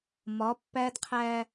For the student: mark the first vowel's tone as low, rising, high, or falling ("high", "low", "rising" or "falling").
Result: rising